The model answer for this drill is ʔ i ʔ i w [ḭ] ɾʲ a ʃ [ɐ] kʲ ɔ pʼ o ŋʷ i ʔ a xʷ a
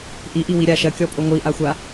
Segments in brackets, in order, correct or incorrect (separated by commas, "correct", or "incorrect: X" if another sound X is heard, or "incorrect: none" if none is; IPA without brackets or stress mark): incorrect: i, correct